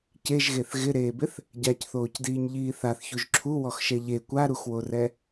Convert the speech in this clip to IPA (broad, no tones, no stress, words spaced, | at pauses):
ceʒɣeθ ɣɪɾeːbɪθ | ɟacθoːcdiːɲʎiː θaθçuʒ ǁʰuwɔxʃɛ ʎe kʷaɾuxworɛ